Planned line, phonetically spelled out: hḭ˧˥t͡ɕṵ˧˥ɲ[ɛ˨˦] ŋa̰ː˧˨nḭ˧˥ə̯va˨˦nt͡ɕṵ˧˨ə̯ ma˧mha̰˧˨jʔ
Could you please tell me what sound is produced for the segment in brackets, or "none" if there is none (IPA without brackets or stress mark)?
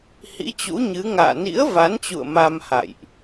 ɨ˨˦